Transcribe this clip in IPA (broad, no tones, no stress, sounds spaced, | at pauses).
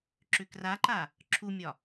ǁ ʏ k r a ǃ a | ǁʰ u mʲ ɒ